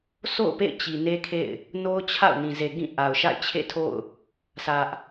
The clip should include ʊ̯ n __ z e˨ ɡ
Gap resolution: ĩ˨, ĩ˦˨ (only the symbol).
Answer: ĩ˨